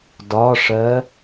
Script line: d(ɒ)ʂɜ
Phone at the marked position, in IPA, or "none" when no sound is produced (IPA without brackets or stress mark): ɒ